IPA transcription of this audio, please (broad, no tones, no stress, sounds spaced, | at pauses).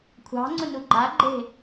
kʷʰ ɑ̤ ŋ͡ǀ ʊ n u ɡ͡ǃ a ɡ͡ǃ e̤